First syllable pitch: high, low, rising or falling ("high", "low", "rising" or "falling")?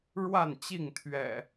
falling